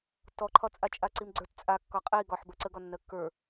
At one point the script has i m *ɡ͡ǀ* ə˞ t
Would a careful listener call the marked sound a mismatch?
no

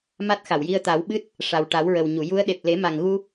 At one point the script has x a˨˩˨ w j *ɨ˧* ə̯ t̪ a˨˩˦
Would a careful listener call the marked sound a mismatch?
yes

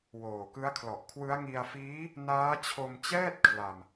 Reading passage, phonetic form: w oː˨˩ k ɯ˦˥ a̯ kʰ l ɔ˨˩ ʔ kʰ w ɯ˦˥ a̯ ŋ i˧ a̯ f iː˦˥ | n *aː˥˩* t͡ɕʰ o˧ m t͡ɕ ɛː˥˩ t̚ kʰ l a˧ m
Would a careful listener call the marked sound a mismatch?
yes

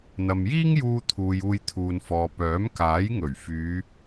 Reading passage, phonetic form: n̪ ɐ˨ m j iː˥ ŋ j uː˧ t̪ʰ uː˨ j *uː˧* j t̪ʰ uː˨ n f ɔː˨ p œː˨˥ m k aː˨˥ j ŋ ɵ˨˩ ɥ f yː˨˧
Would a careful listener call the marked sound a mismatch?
no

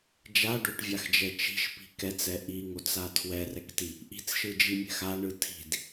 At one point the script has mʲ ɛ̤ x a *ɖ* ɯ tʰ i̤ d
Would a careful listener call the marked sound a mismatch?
yes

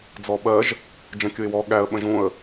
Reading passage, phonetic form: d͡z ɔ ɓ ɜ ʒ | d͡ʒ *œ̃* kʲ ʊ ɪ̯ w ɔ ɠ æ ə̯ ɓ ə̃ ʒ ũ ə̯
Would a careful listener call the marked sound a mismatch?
yes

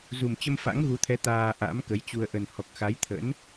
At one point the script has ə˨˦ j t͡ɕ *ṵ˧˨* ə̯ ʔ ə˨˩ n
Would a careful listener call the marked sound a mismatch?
yes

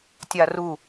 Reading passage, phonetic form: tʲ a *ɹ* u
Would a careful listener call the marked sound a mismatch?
yes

